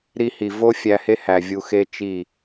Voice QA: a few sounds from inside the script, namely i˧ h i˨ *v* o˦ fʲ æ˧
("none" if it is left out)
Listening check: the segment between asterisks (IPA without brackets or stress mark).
v